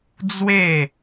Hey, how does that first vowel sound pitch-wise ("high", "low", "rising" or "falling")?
falling